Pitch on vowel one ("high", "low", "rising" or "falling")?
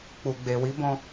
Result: low